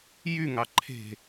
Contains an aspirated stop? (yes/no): yes